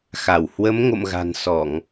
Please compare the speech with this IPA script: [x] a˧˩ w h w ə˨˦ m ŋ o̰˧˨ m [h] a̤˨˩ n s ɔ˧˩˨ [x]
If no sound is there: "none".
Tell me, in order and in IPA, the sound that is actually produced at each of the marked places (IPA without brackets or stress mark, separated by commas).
x, ɣ, ŋ